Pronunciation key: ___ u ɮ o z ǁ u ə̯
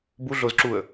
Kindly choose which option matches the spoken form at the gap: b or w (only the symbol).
b